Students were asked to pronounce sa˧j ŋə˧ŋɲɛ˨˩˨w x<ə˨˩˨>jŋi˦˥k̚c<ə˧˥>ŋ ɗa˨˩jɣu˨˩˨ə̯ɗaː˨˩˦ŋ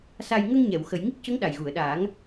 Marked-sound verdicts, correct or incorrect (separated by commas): correct, correct